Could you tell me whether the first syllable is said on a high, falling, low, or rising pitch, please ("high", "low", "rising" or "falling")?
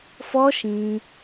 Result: high